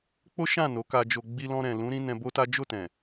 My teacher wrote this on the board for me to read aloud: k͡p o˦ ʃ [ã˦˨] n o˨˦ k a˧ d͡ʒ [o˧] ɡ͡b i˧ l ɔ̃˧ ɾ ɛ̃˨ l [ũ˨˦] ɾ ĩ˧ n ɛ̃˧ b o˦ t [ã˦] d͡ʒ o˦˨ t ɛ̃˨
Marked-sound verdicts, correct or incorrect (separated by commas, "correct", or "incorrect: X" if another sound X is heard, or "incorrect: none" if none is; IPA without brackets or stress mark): correct, correct, correct, incorrect: a˦